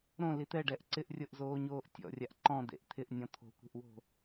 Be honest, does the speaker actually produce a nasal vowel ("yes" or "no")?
yes